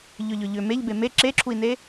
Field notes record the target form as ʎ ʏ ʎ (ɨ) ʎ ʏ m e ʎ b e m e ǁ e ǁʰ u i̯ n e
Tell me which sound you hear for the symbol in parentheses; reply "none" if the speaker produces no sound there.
ʏ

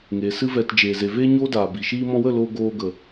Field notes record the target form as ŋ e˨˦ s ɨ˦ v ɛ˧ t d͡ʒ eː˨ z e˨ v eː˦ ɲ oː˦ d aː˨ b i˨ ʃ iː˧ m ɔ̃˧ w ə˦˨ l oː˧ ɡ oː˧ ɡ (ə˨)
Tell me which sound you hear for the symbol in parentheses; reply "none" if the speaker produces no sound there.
ə˨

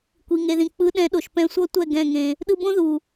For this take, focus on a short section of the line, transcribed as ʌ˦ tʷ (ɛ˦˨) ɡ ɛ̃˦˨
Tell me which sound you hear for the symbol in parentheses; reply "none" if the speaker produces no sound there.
ɛ˦˨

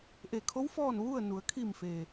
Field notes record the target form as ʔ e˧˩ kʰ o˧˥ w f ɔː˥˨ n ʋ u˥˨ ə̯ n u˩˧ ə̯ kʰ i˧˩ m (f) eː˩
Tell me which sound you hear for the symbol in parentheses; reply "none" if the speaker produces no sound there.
f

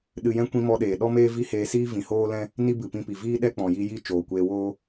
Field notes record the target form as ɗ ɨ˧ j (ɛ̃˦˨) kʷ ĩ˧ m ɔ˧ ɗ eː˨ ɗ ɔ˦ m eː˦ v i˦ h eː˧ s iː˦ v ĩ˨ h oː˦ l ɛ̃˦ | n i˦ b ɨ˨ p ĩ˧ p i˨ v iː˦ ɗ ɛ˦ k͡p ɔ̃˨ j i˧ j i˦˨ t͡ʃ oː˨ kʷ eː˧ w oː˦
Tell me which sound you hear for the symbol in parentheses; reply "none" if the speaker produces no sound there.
ɛ̃˦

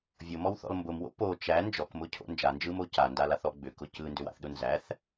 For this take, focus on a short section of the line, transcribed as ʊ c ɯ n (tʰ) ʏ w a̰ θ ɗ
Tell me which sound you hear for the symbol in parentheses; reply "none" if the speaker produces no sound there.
d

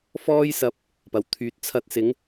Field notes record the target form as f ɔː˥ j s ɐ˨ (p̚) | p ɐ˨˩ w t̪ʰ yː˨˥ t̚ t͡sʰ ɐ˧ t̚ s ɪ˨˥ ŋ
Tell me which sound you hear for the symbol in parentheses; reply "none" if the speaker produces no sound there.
p̚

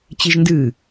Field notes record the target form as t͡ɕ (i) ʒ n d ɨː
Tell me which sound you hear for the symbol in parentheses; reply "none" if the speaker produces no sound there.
i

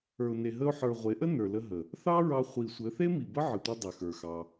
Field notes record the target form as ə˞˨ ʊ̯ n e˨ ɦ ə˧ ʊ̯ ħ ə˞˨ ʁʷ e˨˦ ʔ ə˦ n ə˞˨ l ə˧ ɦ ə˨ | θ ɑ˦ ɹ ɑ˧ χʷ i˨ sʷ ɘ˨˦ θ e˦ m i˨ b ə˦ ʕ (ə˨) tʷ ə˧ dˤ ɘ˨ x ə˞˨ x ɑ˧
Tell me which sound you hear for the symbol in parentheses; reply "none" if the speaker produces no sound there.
ə˨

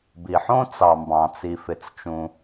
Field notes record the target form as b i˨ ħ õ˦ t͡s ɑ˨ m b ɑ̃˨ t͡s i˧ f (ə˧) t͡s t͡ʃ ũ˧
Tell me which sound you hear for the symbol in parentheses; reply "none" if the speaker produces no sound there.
ɪ˧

